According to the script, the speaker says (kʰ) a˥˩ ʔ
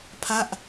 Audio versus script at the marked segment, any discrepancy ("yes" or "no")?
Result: yes